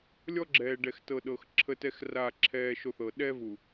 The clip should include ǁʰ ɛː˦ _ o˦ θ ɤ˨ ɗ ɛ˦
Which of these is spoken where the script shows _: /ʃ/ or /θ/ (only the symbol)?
ʃ